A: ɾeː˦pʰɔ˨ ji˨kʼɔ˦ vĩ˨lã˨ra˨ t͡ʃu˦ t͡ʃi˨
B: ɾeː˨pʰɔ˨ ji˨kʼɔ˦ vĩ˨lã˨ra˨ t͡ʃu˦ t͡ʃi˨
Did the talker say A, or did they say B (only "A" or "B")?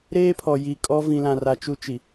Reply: A